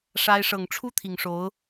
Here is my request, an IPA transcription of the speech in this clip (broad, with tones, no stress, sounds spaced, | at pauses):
ʂ a˥ ɪ̯ ʂ ɤ˨˩ ŋ ʈ͡ʂʰ u˥ t̪ʰ i˨˩ ŋ ʂ o˧˥ ʊ̯